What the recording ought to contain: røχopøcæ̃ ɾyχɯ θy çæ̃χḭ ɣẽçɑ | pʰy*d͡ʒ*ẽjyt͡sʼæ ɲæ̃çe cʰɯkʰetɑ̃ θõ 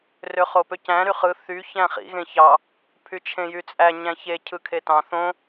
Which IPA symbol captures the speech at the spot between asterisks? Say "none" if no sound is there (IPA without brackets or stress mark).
t͡ʃʰ